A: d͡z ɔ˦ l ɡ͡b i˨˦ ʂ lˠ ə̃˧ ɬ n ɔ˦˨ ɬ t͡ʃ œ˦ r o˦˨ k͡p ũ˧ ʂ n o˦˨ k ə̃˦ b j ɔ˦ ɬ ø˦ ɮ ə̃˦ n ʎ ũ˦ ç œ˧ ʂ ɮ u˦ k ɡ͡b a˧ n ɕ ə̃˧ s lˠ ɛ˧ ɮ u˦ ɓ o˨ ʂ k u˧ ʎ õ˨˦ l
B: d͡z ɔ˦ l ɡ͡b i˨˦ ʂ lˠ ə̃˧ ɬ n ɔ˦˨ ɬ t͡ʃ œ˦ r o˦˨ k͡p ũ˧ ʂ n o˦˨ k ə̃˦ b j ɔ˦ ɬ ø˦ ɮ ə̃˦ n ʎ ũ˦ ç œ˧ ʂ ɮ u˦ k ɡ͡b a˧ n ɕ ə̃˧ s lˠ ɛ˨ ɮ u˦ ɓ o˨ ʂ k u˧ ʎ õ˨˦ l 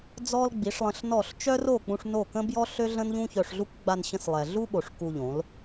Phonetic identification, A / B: B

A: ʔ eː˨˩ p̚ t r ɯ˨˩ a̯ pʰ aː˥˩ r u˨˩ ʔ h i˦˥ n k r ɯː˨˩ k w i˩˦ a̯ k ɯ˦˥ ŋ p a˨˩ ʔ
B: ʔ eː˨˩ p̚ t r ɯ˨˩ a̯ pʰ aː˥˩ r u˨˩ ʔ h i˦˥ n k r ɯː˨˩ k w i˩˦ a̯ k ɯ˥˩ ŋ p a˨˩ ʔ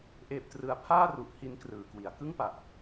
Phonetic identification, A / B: B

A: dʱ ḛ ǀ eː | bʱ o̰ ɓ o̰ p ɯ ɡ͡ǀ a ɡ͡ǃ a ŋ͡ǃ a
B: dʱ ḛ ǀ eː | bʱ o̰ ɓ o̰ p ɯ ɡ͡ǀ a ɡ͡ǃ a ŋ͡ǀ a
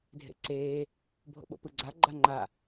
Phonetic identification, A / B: A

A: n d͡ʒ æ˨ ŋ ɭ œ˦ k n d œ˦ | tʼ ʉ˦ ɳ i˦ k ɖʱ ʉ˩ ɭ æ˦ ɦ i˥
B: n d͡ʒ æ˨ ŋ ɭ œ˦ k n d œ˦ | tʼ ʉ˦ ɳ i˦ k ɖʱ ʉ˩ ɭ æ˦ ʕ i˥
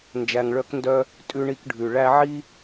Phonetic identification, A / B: B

